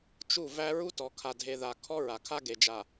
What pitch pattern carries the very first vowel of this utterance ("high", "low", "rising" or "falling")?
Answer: falling